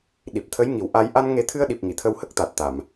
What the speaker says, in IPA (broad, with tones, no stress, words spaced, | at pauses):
ɗi˨˩p̚t̪ʰə˧˥jŋi˨˩w ʔa˧j ʔa˧nŋe˨˩˦t̪ʰɨ˧ə̯ɗi˨˩p̚ ŋi˨˩˨t̪ʰə˧whə˦˥k̚ t̪a˨˩t̚t̪a˨˩˨m